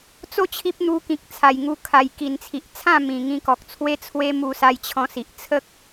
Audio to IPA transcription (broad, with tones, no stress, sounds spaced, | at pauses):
t͡s o˦ t͡ɕʰ i˦ p̚ n̪ u˧ k ĩ˨ k̚ t͡sʰ a˨˩ j ŋ u˧ kʰ a˨˩ j k i˨˩ n t͡sʰ i˨ ʔ t͡sʰ ã˥˧ m ĩ˨˩ ŋ ĩ˧ k ɔ˨ k̚ t͡sʰ w e˦ t͡sʰ w e˦ m u˧ s a˧ j t͡ɕʰ ɔ̃˧ s i˨ ʔ t͡sʰ ə˦ k̚